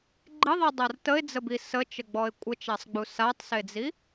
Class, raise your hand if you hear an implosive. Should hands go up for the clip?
no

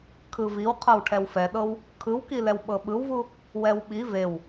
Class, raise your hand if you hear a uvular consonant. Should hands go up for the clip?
yes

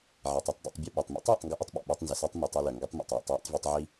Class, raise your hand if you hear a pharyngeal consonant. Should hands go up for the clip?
yes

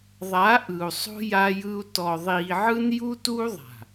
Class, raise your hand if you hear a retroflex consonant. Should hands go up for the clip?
no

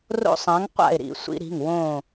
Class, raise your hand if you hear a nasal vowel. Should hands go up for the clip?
yes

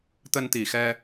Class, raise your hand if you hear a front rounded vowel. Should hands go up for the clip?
no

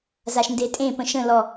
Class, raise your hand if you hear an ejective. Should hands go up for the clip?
yes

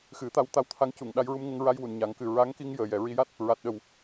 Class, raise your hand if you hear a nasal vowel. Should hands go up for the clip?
no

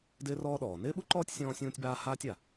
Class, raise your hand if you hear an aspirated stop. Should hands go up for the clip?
no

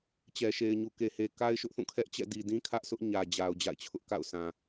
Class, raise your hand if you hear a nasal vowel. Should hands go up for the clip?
yes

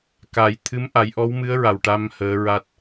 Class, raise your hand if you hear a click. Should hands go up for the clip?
no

